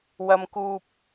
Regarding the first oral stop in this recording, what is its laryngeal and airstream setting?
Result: plain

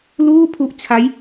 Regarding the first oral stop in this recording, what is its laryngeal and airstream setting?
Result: aspirated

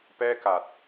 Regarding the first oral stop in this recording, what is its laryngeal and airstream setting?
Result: plain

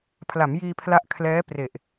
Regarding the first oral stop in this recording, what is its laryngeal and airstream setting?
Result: aspirated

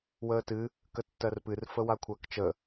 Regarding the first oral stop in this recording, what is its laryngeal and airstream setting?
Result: plain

